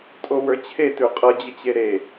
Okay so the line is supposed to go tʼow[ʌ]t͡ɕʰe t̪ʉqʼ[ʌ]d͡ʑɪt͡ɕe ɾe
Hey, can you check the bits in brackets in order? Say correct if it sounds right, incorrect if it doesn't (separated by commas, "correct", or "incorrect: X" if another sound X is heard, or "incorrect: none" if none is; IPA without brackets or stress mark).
incorrect: ə˞, correct